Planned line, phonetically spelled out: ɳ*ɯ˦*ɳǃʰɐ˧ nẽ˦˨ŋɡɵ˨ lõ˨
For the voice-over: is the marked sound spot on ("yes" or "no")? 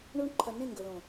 no